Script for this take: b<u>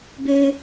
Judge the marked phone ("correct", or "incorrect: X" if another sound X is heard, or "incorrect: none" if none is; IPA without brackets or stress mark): incorrect: ø